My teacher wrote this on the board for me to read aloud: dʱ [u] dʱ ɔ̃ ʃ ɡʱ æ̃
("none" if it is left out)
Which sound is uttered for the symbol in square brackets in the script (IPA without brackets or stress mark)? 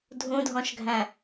ũ